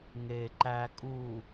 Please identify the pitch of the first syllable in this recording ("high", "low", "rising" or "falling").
low